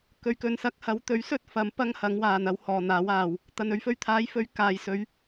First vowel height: mid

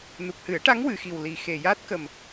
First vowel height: high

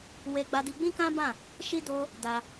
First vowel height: mid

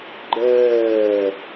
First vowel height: mid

